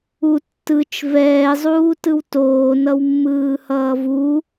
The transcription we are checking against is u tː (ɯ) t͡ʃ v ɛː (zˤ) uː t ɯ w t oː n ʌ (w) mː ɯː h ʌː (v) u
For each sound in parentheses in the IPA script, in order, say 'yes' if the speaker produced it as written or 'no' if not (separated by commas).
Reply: yes, yes, yes, yes